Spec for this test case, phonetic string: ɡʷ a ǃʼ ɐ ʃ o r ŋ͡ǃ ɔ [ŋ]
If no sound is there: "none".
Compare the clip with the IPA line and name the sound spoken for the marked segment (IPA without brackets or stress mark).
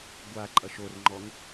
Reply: ŋ